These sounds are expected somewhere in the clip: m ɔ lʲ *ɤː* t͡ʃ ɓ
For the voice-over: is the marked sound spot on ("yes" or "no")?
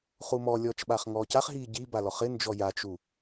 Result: no